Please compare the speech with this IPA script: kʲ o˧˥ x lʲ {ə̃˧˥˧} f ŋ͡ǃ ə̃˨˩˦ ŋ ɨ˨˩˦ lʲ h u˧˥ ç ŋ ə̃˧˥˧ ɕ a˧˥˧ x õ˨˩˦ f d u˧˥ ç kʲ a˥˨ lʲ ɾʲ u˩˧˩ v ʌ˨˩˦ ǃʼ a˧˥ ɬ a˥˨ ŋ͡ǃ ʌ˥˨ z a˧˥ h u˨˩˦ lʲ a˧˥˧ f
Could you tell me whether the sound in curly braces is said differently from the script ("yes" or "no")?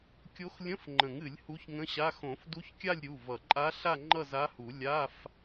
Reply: no